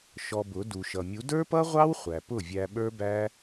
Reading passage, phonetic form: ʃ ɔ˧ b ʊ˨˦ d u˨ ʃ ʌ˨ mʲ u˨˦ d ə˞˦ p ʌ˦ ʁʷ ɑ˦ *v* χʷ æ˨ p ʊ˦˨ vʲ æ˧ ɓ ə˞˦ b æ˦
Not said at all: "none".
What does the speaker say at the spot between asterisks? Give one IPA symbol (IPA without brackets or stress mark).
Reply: w